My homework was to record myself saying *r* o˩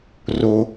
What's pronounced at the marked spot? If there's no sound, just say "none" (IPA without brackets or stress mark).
r